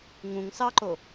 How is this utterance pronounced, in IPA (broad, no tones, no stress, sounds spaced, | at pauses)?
ŋ ũ ŋ s ɑ ǃ o